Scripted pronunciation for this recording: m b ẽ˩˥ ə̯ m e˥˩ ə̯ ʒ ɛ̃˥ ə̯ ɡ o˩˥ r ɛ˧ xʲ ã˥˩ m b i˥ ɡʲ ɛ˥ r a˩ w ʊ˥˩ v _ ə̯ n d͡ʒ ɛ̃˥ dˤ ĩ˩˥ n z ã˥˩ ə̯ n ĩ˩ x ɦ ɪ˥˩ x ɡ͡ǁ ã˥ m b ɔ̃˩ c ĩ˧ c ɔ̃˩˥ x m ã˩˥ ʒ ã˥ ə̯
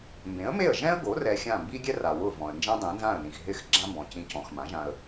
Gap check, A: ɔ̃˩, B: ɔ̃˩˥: A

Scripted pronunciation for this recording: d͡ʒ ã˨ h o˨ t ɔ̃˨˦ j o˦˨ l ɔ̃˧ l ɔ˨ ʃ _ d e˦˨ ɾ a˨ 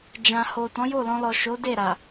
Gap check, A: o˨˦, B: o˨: A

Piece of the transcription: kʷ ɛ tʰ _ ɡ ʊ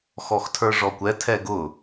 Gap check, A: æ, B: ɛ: B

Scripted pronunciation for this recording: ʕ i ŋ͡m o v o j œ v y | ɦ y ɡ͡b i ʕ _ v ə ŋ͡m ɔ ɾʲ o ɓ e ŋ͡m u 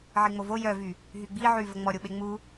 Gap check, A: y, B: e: A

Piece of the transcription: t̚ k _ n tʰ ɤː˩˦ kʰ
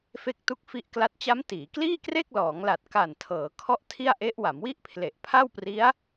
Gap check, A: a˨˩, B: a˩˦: A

